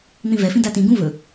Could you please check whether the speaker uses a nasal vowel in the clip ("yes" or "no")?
yes